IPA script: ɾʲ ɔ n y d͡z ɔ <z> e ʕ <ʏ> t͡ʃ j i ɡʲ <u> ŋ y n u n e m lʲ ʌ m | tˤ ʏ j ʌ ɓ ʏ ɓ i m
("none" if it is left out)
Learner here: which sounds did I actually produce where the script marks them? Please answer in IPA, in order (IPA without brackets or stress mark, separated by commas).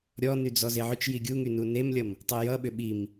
z, ʏ, u